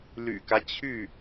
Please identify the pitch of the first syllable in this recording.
low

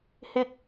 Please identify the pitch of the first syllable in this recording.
high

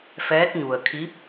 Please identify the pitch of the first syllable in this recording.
rising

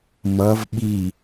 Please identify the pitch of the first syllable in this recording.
rising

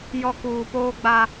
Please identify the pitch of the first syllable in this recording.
low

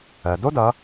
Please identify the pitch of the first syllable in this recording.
low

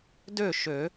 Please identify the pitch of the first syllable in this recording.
falling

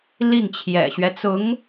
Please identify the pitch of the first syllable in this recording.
falling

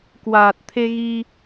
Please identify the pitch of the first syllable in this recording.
low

